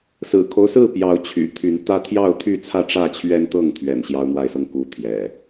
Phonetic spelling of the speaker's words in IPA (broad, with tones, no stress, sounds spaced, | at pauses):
s ɹ̩˨˩ kʰ o˦ ʊ̯ s ɹ̩˥˨ p j ɑ˨˦ ʊ̯ t͡ɕʰ y̰˨˩ t̪ʰ y˨˦ n t̪ ä˦ t̪ʰ j ɑ˥˨ ʊ̯ t̪ʰ y˥˨ t͡sʰ ä˥˨ ʈ͡ʂ ä˥˨ t͡ɕʰ ɥ ɛ˦ n t̪ ɤ˥˨ ŋ t̪ʰ ɥ ɛ̰˨˩ n ɕ j ɑ˦ ʊ̯ n̪ w a˥˨ ɪ̯ s ɤ˥˨ ŋ k u˥˨ t̪ʰ j ɛ̰˨˩